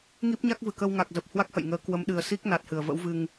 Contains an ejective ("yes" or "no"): no